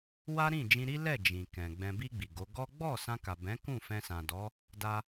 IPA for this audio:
w a˦ ɾ ĩ˦˨ d͡ʒ ĩ˧ ɾ i˦ l ɛ˦˨ d͡ʒ ĩ˨ k ɛ̃˨ ɡ͡b ɛ̃˨ b i˧ ɡ͡b i˨ ɡ o˨˦ ɡ ɔ˦ ɡ͡b ɔ˦˨ s ã˧ k a˨ b ɛ̃˨˦ k ũ˦˨ f ɛ̃˧ s ã˨ d ɔ˨˦ | d a˧

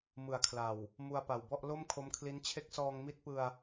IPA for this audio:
m ɯ˨˩ a̯ kʰ l a˨˩ w | m u˧ a̯ p a˨˩ w b ɔ˥˩ ʔ l o˥˩ m kʰ o˦˥ m kʰ l i˦˥ n t͡ɕʰ e˦˥ k̚ s ɔː˧ ŋ m i˦˥ t̚ p ɯ˧ a̯

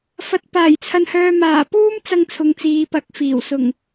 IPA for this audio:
f ɐ˨ t̚ p aː˨˩ j t͡sʰ ɐ˨ n h œː˨ m aː˨˩ p uː˥ m t͡s ɐ˧ ŋ t͡sʰ ʊ˨ ŋ t͡s iː˨˧ p ɐ˨˥ k̚ f iː˨˩ w s ʊ˨˩ ŋ

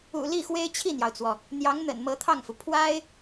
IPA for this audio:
ṵ˨˩ l i˥˩ x w e˥ ɪ̯ t͡ɕʰ i˥˩ n̪ j ɑ˩ ʊ̯ t͡s w ɔ˩ | n̪ j ɑ˧˥ ŋ n̪ ə̰˨˩ n m ɤ˧˥ t̪ʰ ɑ˥˩ ŋ f u˩ pʰ w a˥ ɪ̯

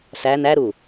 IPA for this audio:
s æ n æ ɾ u

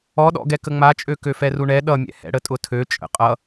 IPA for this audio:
ɔ ɗ ɔ̰ ɡ ɛ k ə ŋ͡m a t͡ʃʼ ø k ø f ɛ r u ɳ ɛ ɗ ʌ mʲ ɛ̰ h ɛ̰ ɽ ə tʼ ʊ tʰ ø t͡ʃʼ ə̰ qʼ ʌ

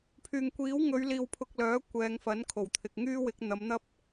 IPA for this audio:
pʰ yː˨ ŋ kʷ iː˨˥ w ŋ ɵ˨˧ ɥ l iː˧ w pʰ ʊ˧ k̚ l œː˨˥ kʷ ɛː˨˧ ŋ f ɐ˨˥ n kʰ o˨˩ w t̪ʰ ɪ˨ k̚ ŋ yː˥ w ɪ˨˥ k̚ n̪ ɐ˨˧ m n̪ ɐ˥ p̚

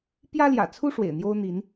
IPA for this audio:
p j ä˦ l j ä̰˨˩ t͡sʰ u˦ ʂ w ḛ˨˩ ɪ̯ n̪ j o˦ ʊ̯ n̪ i˨˦ n

